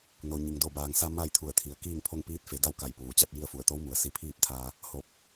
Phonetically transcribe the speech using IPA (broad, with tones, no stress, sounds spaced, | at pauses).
n o˩ ɲ i˩ ŋ d o˧˩ b aː˩ ŋ s a˧ m a˥˨ j t̪ʰ u˧˩ ə̯ t̪ʰ i˩ ə̯ k iː˥˨ ŋ pʰ o˥˨ ŋ p iː˧˥ t̚ f e˩˧ d a˥˨ w k a˧˩ j p uː˩ t͡ɕ a˥˨ t̚ j i˥˨ ə̯ f u˧˩ ə̯ t̪ o˧˥ w m u˩˧ ə̯ s i˧ pʰ iː˥˨ p̚ t̪ʰ aː˧ | h o˧˩ p̚